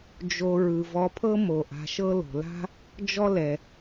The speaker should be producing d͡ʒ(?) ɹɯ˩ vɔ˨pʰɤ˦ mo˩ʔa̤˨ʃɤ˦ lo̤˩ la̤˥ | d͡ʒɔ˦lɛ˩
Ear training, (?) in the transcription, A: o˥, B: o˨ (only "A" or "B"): B